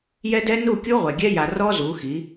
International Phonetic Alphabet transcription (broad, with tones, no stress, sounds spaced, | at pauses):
j ɛ˦ d ɛ˦ n u˦˨ kʲ u˦ ʁʷ ɛ˨ ɡʲ ɛ˦ j a˨ r ɔ˦ z u˨˦ x i˨˦